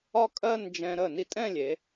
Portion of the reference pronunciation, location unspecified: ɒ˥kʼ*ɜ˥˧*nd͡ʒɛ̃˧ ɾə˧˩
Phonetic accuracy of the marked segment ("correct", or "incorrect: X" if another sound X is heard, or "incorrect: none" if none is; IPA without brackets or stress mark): correct